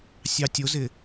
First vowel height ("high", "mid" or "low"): low